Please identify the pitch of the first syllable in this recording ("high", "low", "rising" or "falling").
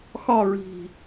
falling